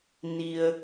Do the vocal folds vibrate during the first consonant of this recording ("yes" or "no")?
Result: yes